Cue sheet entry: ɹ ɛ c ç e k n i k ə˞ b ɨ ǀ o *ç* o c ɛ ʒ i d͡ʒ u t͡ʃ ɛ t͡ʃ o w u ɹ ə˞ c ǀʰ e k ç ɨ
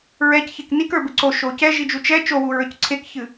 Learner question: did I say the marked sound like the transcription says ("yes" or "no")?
no